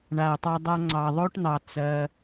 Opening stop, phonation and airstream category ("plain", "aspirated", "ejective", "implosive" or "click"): plain